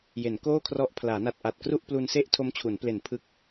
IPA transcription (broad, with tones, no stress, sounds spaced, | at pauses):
j e˩˦ n k oː˥˩ kʰ r ɔ˦˥ ʔ pʰ l aː˩˦ n a˨˩ t̚ ʔ a˨˩ t̚ k r u˥˩ ʔ p l u˧ n s e˥˩ ʔ tʰ o˦˥ m t͡ɕʰ u˩˦ n p l e˨˩ n pʰ ɯ˦˥ k̚